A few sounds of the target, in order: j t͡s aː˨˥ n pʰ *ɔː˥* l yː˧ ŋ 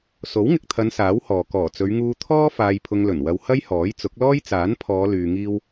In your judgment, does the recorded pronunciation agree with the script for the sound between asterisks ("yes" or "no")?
no